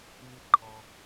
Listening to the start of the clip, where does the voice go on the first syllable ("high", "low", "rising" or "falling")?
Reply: high